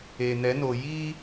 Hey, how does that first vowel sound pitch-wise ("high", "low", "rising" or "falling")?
low